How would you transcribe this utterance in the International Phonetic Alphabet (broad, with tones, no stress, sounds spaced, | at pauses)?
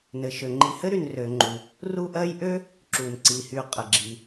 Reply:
n ɘ˩ ʃ ø˩ ŋ͡ǃ i˨ h ɘ˥ ɾ y˨ n r ø˩ ŋ͡ǃ u˩ | r u˦ ʔ ɜ˦ j ʔ ø˥ | ǁ u˩ n ǀ i˩ h y˨ qʼ ə˩ ɡ͡ǁ i˩